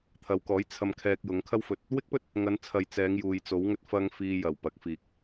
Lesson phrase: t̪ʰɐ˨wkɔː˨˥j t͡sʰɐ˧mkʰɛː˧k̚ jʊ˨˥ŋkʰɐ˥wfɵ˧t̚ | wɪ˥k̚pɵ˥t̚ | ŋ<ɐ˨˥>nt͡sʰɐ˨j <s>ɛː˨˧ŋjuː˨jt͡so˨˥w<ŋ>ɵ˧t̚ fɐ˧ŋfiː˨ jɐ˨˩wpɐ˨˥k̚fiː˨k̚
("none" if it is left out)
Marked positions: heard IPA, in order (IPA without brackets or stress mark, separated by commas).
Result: ɐ˨˧, t͡s, ŋ